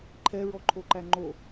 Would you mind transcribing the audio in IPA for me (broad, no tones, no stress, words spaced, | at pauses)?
ǃʰɛɹɔǃʰoǃæ ŋ͡ǃo